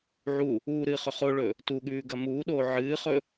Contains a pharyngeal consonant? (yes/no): yes